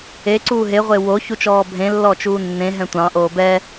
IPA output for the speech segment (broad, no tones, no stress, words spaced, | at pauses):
e ǀuːɦeʁʷe wo çut͡ʃɔːbʱẽ lːɔt͡ʃuːnːẽɦɛ̃ tʷɑ̃ʔoː bɛ